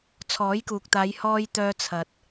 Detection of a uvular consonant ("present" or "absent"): absent